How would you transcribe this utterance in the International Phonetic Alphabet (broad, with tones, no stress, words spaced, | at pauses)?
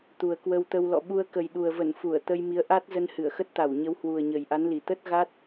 t̪u˨˩ə̯kwə˧wt̪ə˧w lɔ̰˧˨ɓu˧ə̯ kə˨˩jɗu˨˩ə̯və˧˩n fu˧˩ə̯ t̪ə˧jmi˨˦ə̯ ʔa˦˥t̚ zə˧nhɨ˧˩ə̯xə˦˥t̚ t̪a˧˩wɲə˨˦w hwu˨˩ə̯ɲə˨˩j ʔa˨˦nli˨˩ t̪ə˦˥t̚ɣa˦˥t̚